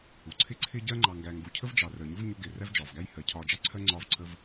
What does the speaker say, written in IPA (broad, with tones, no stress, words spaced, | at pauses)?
hu˨˦ǀʰɪ˦ǀʰɪ˦ɟɜ˦ ŋ͡ǃɑ˨ŋɡæ˨ ŋɡu˨cʰə˦v d͡ʒɑ˨rəː˨ɲʊ˦v ɲʊ˧ɡɪː˨ ræ˦vd͡ʒɒː˨vɡæ˦j hɜ˨cʰɒː˧d͡ʒɑ˦ ǀʰɜ˦ ŋ͡ǀɒː˦vǀʰə˦v